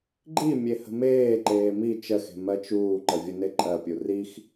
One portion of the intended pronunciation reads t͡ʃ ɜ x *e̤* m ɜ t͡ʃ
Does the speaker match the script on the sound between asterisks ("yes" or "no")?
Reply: yes